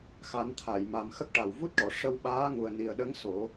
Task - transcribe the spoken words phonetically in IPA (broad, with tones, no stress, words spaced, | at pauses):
xa˨˩˦nt̪ʰa˨˩˨j ma˨˩mxə˦˥k̚ʈa˨˩w vu˦˥t̚ʈɔ˨˩˨ ʂə˧wɓaː˧˥ ŋu˨˩ə̯ ni˨˩ə̯ɗə˧˥ŋ so˨˩˦